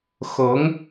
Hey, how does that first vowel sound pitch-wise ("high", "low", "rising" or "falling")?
rising